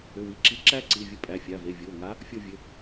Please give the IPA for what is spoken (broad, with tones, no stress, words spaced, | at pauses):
ʏ˩˧˩wi˩˧˩ǁi˨˥ ǁæ˦˥ǀi˩˧˩vʲə˨˥ pʼæ˩˧˩fʲa˩˧˩ve˩˧˩ vʲo˩˧˩ŋa˨˥ | fʲo˥˨vʲɘ˩˧˩